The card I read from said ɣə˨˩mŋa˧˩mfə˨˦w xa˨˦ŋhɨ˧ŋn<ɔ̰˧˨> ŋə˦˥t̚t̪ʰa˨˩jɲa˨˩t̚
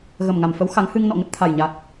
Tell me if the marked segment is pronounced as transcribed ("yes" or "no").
yes